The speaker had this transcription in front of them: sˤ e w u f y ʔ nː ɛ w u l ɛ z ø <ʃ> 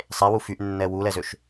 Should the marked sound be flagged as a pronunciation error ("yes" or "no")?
no